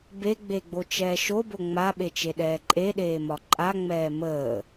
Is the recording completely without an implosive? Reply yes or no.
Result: no